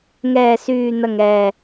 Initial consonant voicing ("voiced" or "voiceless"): voiced